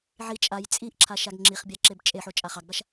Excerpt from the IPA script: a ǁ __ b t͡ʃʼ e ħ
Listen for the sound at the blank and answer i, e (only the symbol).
e